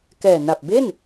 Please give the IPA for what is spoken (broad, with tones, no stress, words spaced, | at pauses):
kɛː˨˩na˨˩p̚ be˥˩n